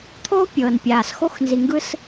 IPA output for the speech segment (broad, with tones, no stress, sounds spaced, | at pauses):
t̪ʰ oː˦ pʲ ɤː˨ n pʲ aː˨ s x o˧ x n z i˨ ŋ ɡ ɯ˧ s